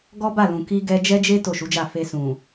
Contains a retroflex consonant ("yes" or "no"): no